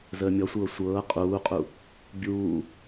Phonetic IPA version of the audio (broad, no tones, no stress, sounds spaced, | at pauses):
z əː mʲ ɔ sʷ ɤː sʷ ɤː qʼ uː qʼ u | bʲ uː